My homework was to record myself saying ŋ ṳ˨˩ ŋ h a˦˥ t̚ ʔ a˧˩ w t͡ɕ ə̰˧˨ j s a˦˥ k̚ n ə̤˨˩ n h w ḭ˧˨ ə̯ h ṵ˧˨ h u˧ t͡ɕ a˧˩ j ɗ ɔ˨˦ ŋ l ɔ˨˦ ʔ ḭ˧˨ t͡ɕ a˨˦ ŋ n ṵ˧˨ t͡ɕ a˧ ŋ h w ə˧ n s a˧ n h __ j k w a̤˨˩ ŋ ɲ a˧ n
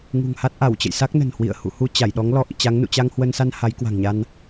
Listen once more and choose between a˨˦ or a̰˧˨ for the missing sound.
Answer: a˨˦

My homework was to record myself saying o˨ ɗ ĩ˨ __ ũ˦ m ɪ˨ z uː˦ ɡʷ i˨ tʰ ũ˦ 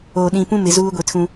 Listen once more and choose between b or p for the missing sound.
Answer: p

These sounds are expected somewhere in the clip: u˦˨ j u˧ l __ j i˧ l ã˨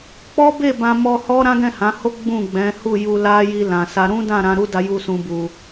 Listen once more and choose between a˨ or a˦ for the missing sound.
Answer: a˦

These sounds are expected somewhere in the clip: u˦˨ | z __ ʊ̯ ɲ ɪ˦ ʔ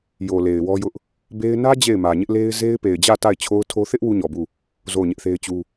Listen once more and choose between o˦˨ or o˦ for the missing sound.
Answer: o˦˨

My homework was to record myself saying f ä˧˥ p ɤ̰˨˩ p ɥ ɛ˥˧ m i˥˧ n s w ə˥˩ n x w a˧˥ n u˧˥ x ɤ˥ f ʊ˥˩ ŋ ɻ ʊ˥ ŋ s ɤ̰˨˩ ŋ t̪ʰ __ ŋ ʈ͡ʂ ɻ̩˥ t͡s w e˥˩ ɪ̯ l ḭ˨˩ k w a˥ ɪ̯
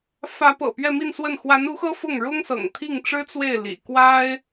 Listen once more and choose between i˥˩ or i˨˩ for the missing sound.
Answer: i˥˩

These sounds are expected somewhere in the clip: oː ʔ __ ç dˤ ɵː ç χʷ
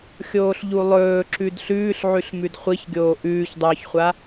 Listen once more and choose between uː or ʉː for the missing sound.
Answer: ʉː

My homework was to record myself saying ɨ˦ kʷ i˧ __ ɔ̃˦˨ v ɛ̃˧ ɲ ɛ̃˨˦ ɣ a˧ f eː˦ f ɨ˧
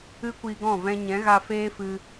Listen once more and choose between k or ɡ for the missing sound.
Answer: ɡ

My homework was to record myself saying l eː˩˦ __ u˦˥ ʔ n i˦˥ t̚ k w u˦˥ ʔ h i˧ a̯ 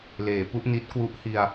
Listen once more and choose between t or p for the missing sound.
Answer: p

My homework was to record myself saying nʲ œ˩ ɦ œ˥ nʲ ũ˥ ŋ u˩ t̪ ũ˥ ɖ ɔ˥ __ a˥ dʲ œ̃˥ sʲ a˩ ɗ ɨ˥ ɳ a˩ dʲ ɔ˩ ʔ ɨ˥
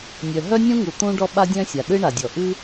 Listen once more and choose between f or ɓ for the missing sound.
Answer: ɓ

